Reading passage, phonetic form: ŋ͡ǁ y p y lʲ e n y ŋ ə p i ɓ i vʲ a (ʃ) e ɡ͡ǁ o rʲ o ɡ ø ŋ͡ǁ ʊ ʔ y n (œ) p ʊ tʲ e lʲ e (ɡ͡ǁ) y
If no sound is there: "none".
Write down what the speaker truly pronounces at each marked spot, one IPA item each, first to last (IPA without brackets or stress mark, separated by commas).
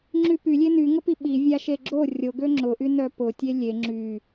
ʃ, œ, ŋ͡ǁ